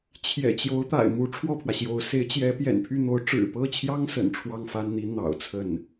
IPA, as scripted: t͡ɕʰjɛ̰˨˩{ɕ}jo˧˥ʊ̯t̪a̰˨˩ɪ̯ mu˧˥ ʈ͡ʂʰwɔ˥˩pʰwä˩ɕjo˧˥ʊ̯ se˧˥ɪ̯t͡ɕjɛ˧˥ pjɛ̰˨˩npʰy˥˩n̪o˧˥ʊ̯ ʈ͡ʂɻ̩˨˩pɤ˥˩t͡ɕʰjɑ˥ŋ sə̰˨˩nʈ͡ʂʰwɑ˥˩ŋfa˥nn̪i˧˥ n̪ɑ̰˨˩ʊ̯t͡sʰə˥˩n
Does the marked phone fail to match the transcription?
yes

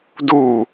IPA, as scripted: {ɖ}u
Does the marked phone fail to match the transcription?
yes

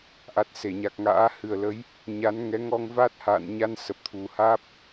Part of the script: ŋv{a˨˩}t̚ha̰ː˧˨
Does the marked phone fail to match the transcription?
yes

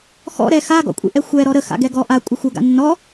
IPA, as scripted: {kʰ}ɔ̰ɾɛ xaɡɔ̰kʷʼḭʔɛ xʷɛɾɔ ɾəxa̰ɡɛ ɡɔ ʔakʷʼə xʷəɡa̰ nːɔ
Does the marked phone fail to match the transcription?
yes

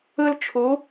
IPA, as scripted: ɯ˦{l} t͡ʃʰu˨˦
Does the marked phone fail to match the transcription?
no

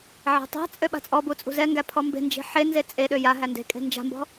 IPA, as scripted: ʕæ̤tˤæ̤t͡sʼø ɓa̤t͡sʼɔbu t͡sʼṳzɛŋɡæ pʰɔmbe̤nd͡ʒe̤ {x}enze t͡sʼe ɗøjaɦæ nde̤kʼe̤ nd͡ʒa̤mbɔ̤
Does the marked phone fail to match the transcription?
yes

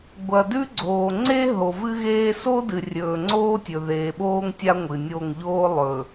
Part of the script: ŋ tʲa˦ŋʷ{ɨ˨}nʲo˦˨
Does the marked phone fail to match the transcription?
no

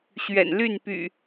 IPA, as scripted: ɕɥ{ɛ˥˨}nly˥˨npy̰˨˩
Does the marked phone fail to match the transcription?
yes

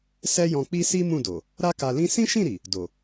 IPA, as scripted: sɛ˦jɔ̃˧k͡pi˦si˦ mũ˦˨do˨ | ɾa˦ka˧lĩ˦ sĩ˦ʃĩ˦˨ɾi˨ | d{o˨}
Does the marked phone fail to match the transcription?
no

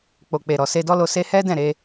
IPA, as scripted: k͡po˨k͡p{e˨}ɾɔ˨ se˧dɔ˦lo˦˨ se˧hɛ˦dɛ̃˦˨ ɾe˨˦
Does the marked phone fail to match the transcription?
no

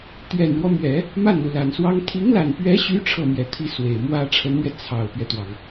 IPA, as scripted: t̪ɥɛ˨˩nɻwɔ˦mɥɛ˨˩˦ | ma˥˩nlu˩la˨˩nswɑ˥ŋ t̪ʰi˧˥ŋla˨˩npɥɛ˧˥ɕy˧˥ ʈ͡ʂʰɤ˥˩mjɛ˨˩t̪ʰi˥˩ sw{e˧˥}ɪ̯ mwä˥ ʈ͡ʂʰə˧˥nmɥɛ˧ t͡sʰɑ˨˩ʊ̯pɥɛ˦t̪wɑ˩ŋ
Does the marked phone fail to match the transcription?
yes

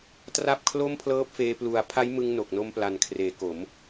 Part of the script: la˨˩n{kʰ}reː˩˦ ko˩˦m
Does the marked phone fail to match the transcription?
no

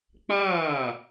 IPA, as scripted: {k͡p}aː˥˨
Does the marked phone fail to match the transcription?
no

